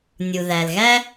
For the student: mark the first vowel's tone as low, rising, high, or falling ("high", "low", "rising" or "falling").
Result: low